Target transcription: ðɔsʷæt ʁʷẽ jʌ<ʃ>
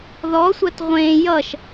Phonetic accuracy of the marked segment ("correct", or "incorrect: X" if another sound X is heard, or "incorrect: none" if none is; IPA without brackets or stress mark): correct